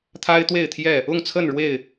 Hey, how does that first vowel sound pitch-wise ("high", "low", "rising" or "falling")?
high